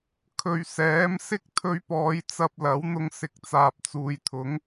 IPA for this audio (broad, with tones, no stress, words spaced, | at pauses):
kʰɵ˨ɥ sɛː˨˥m sɪ˥k̚t̪ʰɵ˧ɥpɔː˨˧j t͡sɐ˧p̚lɐ˨˥w n̪ʊ˧ŋsɪ˨k̚ t͡saː˨p̚t͡suː˨jt̪ʰʊ˨˥ŋ